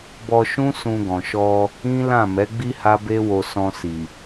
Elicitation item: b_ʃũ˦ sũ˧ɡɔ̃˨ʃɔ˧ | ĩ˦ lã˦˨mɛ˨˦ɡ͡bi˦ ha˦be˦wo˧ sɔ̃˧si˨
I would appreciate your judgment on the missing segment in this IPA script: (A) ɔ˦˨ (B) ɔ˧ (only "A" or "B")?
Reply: B